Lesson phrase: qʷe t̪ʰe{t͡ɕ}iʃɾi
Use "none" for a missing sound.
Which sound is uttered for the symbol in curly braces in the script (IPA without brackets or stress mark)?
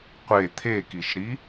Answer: k